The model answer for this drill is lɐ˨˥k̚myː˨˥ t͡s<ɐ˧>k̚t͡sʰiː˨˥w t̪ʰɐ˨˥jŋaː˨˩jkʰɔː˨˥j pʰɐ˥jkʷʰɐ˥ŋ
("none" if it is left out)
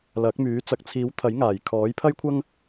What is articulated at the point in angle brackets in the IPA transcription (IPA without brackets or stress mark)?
ɐ˨